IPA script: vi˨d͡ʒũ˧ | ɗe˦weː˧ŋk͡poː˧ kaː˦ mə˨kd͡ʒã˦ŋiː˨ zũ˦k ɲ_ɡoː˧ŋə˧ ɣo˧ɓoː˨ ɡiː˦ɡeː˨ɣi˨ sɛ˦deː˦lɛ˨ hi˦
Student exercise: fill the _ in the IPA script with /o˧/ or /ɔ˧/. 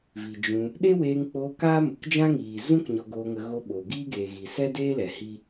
ɔ˧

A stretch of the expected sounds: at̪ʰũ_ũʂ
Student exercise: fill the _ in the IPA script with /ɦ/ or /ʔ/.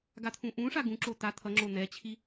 ʔ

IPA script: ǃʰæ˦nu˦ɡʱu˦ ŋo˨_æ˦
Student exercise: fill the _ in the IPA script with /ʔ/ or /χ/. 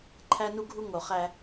χ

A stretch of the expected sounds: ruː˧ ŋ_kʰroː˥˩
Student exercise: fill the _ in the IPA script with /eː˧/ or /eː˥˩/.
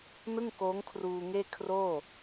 eː˥˩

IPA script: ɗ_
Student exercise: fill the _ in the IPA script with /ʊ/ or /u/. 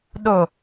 ʊ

